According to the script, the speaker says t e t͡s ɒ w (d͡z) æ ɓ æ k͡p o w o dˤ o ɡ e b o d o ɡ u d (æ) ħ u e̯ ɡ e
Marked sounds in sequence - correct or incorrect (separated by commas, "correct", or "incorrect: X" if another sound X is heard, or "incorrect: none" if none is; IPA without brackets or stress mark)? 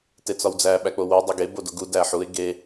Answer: correct, correct